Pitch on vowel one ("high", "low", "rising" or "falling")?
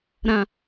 low